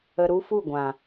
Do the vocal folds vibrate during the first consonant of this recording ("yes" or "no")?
yes